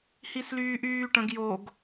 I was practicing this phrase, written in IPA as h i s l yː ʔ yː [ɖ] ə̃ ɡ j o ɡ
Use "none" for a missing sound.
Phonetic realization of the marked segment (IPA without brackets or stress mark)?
ʈ